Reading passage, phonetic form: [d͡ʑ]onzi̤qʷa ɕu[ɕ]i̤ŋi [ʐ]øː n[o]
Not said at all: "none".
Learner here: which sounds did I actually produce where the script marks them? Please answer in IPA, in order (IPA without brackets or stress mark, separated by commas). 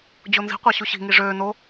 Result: d͡ʑ, ɕ, ʐ, o